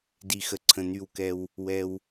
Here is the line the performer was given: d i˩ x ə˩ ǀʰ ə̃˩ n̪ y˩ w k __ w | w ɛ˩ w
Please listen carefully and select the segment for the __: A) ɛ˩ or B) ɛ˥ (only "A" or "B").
A